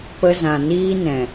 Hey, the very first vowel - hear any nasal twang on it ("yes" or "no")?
no